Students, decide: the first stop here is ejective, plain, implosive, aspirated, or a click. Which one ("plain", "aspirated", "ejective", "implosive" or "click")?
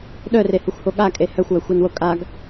implosive